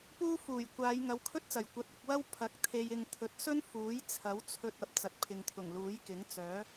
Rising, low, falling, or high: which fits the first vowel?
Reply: high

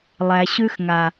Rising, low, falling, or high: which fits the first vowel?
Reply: low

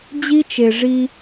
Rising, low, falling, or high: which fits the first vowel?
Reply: high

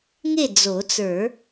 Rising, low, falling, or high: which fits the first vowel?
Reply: falling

